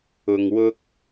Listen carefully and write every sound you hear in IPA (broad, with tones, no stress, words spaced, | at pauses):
ʊ˨ŋwʊ˧k̚